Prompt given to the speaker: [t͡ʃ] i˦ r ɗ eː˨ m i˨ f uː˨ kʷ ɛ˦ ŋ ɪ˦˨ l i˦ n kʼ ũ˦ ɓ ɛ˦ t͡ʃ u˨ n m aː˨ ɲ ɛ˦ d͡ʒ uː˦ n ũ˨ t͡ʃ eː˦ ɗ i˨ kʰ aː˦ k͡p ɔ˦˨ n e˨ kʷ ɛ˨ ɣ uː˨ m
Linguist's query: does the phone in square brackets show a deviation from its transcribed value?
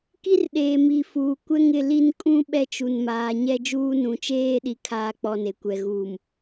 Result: yes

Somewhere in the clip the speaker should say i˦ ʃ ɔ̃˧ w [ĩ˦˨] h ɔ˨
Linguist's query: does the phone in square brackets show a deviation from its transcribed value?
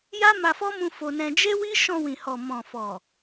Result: yes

